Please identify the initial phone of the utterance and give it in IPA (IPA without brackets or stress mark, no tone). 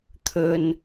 t̪ʰ